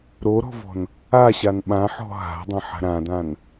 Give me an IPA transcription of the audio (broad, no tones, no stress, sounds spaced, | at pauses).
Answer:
ɾ o ɾ ɔ̤ v ɔ̤ n | a ɕ a n ɓ ã ħ ɔ̤ ɦ a̤ dˤ ɐ̃ ħ a̤ ɾ ã d ã n